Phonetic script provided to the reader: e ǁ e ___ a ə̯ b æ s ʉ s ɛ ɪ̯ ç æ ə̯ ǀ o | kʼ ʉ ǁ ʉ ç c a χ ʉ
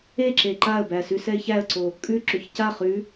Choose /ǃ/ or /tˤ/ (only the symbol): ǃ